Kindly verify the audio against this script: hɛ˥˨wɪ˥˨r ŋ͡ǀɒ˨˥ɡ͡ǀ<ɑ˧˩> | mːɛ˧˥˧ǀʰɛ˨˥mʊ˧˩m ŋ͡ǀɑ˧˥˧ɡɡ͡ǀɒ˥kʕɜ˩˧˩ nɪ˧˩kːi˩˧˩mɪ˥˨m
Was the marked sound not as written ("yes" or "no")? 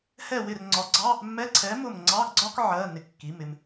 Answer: yes